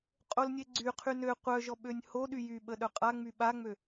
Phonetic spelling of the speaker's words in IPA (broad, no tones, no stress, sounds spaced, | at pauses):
qʼ o l nʲ e ɡ͡ǀ y qʰ y n ø qʷ œ ʒ ɔ ɓ ø nʲ h o ɗ y j y ɓ ə ɗ œ qʼ a ŋ͡m y ɓ a ŋ͡m ø